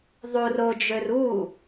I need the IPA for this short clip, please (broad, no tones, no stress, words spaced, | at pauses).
ðˤur ʊd͡ʒør u